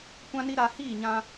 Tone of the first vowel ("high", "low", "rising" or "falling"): high